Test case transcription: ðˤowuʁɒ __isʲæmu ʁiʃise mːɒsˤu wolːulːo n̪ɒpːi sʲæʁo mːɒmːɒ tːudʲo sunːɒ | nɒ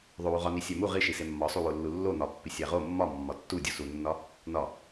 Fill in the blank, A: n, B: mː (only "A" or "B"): A